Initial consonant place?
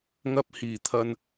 velar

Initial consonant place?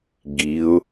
velar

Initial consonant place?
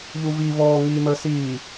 palatal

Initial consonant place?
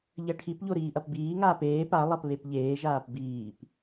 palatal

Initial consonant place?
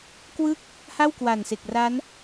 velar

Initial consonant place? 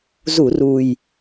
alveolar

